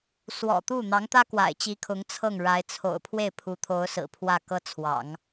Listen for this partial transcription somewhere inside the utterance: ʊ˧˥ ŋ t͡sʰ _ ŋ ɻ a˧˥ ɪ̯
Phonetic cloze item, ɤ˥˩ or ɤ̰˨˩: ɤ˥˩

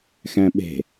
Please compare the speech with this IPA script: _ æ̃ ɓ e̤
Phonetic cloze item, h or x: x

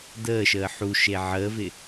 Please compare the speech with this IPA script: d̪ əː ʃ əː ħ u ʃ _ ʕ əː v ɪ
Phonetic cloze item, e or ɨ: e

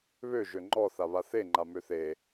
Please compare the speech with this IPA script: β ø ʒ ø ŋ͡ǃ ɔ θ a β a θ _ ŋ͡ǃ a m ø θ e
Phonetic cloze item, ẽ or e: e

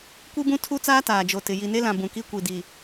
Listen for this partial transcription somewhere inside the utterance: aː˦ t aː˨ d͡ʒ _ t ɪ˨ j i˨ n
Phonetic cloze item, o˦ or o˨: o˨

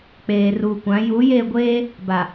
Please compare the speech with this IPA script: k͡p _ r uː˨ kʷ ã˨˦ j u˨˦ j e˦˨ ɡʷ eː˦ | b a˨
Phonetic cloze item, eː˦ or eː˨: eː˨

